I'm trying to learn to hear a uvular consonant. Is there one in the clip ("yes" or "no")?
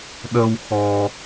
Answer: no